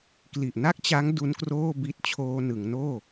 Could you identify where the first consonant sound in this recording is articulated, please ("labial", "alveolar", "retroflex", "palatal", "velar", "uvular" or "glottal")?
velar